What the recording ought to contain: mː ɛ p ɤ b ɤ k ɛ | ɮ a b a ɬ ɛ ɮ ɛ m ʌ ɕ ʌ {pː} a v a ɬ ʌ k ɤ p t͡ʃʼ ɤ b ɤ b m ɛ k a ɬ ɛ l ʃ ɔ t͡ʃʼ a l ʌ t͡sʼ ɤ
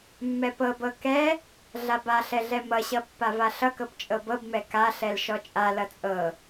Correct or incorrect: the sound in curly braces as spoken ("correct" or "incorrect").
correct